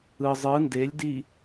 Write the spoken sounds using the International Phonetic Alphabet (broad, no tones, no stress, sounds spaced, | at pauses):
ɯ zˤ ɯ n d e lʲ d i